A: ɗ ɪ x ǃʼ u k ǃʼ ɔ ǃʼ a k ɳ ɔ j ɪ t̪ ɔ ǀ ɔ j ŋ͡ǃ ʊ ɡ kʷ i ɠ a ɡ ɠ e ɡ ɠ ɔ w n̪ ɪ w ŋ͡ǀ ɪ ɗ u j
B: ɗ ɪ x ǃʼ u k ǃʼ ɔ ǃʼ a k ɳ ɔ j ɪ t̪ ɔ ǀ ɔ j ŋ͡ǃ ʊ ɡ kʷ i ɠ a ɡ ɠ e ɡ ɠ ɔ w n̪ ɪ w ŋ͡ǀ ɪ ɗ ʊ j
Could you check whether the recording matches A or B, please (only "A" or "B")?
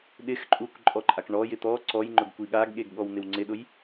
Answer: B